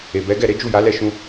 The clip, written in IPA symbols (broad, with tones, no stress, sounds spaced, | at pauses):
e˨ b ɛ˨˦ ɡ ɛ˦˨ ɾ e˨˦ d͡ʒ u˦˨ j a˨˦ l ɛ˦˨ ʃ ũ˧